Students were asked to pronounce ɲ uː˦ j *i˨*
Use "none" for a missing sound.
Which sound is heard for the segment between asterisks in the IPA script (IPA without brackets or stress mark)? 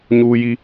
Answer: i˦